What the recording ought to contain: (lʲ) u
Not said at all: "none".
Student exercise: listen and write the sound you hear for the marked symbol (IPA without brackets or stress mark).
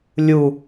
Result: lʲ